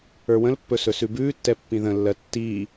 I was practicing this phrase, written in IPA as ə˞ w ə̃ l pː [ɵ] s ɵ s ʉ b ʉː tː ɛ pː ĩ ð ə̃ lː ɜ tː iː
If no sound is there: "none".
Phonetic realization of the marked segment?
ɵ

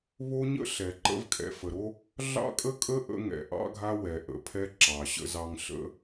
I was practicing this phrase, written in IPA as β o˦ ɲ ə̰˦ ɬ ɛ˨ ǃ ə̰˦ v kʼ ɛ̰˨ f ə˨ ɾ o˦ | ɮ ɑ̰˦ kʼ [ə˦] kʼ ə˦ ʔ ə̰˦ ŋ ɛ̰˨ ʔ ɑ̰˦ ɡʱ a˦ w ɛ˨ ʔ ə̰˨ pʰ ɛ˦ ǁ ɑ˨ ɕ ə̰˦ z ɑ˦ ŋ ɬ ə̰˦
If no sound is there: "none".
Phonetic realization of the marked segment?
ə˦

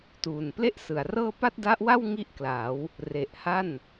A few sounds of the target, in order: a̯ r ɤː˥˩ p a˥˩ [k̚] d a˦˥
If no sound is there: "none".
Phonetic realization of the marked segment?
t̚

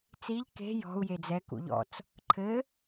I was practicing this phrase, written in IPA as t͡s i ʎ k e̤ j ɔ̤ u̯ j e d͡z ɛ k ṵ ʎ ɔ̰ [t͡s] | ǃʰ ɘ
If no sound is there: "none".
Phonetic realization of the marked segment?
t͡s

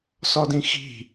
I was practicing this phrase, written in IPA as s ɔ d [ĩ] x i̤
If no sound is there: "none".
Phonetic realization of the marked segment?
ĩ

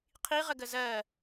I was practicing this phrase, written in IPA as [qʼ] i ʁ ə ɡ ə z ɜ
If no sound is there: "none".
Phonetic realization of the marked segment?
qʰ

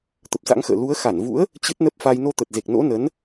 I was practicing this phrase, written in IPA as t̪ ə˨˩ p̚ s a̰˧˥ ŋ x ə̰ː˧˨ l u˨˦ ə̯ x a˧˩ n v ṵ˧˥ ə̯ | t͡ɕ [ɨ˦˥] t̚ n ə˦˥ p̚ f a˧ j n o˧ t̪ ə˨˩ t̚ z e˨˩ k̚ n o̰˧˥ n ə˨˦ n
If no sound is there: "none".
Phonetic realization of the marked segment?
ɨ˦˥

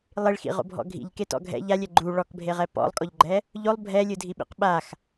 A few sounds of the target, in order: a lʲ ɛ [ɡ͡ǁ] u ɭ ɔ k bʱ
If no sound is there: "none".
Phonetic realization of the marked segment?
ɡ͡ǃ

